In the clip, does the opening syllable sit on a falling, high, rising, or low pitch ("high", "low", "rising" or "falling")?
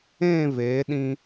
falling